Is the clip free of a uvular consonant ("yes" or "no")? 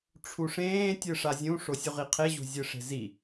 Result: no